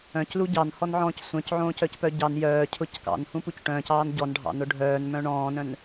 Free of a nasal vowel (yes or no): no